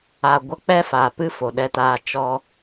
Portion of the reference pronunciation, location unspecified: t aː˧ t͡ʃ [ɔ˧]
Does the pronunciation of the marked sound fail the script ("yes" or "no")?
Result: no